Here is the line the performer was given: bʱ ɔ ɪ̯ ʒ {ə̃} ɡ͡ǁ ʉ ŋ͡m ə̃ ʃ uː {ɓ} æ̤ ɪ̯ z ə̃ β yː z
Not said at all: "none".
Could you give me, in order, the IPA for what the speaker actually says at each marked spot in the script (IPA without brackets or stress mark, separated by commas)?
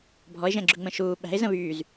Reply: ɛ̃, ɓ